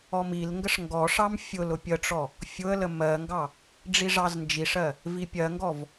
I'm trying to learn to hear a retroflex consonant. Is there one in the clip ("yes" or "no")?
yes